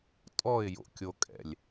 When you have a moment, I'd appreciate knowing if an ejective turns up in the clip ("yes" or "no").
yes